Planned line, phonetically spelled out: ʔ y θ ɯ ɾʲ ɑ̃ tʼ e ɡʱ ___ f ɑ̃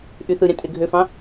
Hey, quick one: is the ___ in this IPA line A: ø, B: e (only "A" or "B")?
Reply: A